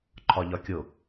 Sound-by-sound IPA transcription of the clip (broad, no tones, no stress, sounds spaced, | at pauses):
ǃʰ ɒ ʎ ɒ kʲ o